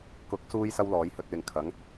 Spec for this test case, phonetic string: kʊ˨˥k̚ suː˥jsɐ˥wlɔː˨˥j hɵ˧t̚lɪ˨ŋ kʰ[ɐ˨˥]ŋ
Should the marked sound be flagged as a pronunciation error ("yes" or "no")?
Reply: no